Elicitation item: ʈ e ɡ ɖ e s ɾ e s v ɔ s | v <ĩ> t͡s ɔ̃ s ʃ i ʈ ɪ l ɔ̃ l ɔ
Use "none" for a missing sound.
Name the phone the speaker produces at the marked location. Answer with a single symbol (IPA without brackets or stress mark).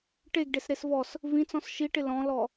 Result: ĩ